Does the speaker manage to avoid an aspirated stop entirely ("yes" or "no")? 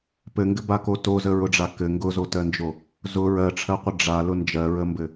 no